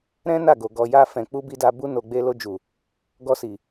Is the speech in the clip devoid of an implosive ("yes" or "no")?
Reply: yes